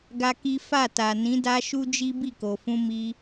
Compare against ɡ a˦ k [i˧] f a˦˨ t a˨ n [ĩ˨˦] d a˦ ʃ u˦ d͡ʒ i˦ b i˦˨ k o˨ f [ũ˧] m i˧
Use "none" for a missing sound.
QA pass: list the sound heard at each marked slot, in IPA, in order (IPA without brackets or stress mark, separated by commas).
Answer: i˦, ĩ˨˦, ũ˧